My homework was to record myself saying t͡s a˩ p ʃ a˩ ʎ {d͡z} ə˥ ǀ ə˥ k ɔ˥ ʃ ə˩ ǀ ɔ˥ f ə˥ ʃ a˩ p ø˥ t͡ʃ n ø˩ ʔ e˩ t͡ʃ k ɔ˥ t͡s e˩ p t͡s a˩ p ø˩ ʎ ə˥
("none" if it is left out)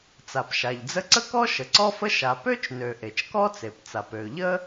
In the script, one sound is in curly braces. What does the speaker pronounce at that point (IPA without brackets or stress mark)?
d͡z